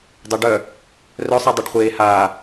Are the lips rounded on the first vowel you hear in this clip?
yes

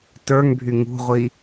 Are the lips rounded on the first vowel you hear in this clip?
no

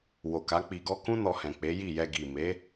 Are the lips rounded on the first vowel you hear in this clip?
yes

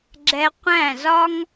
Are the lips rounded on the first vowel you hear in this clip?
no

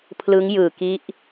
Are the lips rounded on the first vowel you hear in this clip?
no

